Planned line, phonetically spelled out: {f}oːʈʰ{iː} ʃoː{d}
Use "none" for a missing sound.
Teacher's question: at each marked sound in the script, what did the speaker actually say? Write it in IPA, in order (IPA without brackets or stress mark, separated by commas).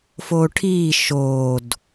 f, iː, d